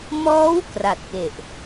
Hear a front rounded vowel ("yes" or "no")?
no